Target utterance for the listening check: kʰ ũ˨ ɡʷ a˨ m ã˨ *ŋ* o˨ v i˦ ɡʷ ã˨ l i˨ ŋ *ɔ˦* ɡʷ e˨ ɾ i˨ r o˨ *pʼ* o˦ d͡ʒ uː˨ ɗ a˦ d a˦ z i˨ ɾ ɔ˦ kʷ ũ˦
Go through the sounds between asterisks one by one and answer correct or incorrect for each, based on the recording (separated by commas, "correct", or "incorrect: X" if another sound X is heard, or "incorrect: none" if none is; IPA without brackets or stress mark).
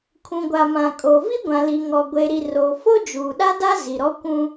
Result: incorrect: kʼ, incorrect: ɔ˨, incorrect: f